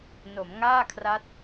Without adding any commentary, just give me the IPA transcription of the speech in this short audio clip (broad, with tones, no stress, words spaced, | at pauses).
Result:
no˩˦mŋaː˥˩kʰra˦˥t̚